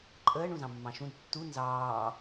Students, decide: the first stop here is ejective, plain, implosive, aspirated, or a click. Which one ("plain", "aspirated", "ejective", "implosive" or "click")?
click